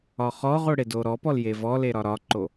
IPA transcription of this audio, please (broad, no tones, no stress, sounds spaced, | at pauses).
ɒ χ ɔ ʁ o ɽ e d o ɾ ɔ p ɔ l j e v ɔ l e ɾ ɒ ɾ ɒ ǃ o